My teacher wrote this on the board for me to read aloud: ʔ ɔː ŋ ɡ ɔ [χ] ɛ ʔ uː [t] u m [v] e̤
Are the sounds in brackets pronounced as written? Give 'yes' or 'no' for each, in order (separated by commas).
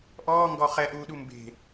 yes, no, no